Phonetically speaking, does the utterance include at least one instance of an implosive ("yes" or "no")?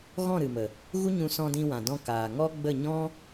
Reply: no